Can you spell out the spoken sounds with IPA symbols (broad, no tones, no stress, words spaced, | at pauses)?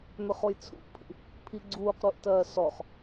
mʏχojt͡sʰṵʔpʰḭ | pʰiɡ͡ǀuːqɾuʔtɜː sɔχ